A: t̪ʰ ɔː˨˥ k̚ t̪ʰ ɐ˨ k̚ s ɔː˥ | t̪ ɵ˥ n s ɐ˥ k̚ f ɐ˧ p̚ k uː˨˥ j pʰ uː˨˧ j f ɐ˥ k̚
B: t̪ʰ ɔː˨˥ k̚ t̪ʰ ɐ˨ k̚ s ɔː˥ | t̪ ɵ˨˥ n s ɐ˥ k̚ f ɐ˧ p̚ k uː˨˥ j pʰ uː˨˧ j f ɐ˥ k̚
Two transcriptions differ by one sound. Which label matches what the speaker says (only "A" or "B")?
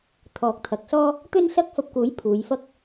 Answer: A